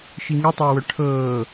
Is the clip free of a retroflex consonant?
no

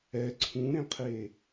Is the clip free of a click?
no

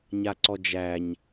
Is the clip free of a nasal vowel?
yes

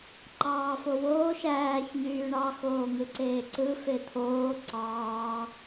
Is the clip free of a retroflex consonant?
no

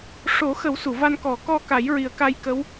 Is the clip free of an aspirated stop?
yes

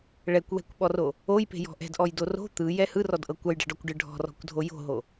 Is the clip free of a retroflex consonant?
no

